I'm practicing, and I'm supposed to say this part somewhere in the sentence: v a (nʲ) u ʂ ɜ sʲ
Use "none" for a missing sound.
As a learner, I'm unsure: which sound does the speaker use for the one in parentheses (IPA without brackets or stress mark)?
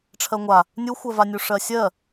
nʲ